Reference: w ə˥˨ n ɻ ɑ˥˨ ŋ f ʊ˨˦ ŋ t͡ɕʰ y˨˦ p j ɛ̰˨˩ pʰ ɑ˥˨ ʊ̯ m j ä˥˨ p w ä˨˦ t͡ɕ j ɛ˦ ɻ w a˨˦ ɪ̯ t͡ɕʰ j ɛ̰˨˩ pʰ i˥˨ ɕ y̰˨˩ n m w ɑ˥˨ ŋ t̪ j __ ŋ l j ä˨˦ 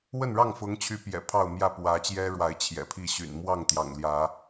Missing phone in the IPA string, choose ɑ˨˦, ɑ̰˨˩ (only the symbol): ɑ̰˨˩